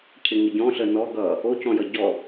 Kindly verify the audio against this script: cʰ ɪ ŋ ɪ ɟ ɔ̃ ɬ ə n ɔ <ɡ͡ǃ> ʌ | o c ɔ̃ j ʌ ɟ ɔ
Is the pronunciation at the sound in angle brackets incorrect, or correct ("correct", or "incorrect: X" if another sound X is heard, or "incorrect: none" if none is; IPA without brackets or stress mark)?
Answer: incorrect: ɡ